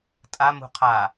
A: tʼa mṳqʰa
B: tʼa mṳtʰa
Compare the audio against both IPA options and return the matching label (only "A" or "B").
A